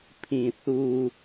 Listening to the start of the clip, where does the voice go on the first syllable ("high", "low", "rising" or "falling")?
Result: low